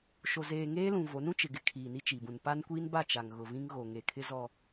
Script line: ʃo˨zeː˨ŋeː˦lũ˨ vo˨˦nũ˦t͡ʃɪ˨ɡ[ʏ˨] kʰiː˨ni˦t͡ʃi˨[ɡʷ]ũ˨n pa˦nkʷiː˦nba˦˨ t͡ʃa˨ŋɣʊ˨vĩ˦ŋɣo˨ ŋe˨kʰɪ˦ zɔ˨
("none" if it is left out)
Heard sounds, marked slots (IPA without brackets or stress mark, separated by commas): ɪ˨, b